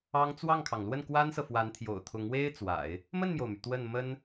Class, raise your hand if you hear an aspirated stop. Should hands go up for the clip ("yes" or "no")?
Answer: yes